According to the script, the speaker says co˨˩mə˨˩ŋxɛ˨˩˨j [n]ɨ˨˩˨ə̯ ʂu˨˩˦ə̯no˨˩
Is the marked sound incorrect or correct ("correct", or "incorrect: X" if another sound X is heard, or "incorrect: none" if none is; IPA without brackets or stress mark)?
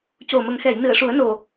correct